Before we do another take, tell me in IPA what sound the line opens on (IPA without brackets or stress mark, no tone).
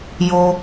j